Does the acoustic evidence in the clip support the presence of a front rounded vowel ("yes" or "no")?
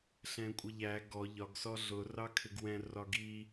no